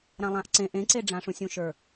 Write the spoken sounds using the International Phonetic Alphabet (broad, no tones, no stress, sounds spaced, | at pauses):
ɾ ã lˠ ã ʔ ǀ ẽ ʔ ẽ ǀ e ɖ͡ʐ ã ʂ ũ sʲ ũ ʃ ə˞